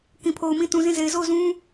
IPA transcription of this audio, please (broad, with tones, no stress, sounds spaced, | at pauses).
k ĩ˨ pʰ o˨ ʊ̯ m ĩ˦ t ũ˨ z ĩ˦˨ z e˨ ɪ̯ z o˦˨ ʊ̯ z ũ˦